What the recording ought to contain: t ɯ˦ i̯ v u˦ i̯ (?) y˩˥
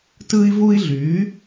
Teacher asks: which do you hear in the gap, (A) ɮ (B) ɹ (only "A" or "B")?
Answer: A